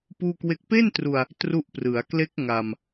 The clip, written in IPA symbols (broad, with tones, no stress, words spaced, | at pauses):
puː˥˩kwe˥˩k̚ pe˥˩ntru˧a̯ | tru˦˥ʔ prɯ˩˦a̯kle˦˥k̚ ŋa˧m